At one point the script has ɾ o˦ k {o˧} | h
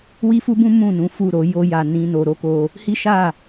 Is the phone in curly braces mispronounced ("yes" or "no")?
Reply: no